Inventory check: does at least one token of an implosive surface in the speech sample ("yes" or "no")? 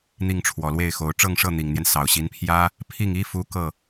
no